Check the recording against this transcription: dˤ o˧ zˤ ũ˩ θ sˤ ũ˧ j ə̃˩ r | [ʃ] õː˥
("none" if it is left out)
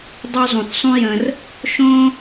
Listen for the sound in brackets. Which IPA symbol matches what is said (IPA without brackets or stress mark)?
ʃ